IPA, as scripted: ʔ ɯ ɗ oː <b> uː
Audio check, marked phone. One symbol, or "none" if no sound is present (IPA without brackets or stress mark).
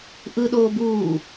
b